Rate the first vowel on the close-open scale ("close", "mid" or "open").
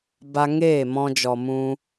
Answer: open